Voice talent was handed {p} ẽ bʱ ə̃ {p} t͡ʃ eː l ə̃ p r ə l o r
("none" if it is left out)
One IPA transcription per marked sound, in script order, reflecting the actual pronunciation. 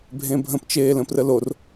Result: bʱ, p

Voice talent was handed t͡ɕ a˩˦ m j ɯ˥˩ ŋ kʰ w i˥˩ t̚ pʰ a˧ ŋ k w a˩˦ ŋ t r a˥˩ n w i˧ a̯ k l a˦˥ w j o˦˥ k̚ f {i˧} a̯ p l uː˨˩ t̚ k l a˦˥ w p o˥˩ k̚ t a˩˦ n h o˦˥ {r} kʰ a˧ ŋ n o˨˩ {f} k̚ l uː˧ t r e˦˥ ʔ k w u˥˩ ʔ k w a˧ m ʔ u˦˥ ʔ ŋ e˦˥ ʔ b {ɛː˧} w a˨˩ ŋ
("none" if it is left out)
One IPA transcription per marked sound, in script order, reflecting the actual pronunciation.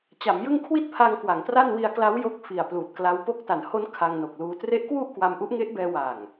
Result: i˨˩, n, none, ɛː˧

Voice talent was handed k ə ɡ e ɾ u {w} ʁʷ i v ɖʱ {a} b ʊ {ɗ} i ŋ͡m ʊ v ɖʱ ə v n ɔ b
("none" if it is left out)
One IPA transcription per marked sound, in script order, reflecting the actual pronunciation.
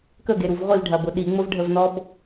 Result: v, ɐ, ɗ

